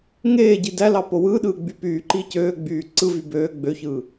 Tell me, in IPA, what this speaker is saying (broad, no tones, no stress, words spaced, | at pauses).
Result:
ŋeːɟi dælɑ powɯːɗɯː ɡ͡bypyːǃiː cøːɡ͡byː ǀɯvy bøː ɡ͡bøçɯː